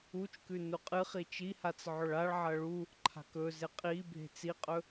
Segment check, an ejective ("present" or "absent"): present